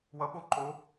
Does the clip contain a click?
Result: yes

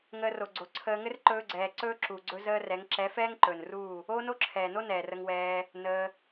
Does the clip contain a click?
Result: yes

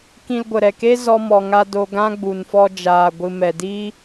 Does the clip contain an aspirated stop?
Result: no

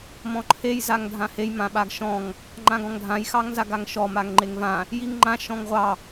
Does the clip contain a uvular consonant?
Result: yes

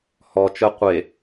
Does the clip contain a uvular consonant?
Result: yes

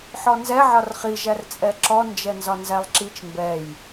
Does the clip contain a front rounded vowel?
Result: no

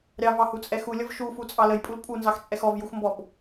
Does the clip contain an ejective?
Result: yes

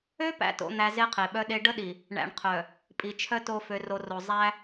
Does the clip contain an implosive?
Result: yes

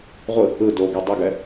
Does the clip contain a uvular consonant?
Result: yes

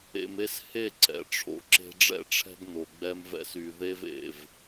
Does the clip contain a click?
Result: yes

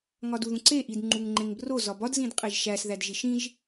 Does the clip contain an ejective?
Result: yes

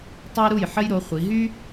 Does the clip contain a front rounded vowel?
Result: yes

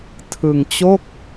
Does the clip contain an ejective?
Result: no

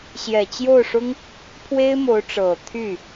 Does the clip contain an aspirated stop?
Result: yes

